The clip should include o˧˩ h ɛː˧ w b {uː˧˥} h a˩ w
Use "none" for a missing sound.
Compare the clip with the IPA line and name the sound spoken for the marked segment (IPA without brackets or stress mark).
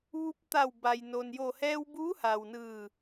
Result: uː˧˥